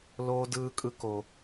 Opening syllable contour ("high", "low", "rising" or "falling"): high